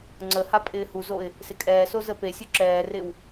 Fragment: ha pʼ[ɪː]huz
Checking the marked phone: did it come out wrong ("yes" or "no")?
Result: no